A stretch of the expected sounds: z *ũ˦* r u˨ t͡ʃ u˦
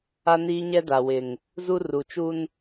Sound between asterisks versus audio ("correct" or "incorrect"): incorrect